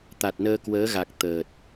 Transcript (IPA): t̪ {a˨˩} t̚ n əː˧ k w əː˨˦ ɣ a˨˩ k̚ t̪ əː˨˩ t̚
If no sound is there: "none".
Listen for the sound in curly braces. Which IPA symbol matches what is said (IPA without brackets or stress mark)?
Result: a˨˩